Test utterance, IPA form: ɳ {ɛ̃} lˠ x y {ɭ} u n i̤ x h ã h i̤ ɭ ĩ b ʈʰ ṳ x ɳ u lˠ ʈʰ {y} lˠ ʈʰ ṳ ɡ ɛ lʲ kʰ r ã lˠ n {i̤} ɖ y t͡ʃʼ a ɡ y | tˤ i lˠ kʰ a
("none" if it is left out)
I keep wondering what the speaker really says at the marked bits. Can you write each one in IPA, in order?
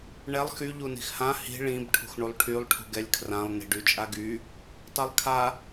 ɛ, ʎ, y, i̤

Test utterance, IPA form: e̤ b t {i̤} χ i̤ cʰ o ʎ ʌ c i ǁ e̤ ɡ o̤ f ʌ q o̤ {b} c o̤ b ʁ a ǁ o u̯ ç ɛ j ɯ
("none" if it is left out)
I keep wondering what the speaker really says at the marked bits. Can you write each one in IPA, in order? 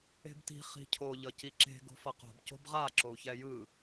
i̤, b

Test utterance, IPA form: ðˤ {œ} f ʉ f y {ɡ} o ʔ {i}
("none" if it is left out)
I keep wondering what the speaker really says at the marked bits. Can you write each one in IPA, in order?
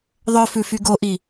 œ, ɡ, i

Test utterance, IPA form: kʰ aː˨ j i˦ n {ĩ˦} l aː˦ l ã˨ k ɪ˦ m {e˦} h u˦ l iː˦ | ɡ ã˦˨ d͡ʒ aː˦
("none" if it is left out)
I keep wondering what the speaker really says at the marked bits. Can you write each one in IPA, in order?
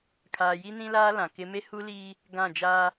ĩ˦, e˦

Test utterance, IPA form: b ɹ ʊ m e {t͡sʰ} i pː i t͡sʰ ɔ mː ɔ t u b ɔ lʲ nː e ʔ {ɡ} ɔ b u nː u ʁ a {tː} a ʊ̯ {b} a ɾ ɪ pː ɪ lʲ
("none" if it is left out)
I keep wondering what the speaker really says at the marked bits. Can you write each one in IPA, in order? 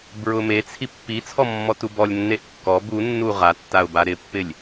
t͡sʰ, kː, tː, b

